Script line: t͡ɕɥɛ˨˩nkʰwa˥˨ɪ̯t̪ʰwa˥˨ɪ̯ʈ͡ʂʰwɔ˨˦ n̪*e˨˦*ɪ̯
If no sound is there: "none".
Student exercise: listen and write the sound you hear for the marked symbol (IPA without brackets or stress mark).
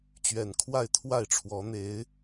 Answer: e˨˦